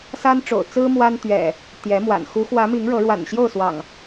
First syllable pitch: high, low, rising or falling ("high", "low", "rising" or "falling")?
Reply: high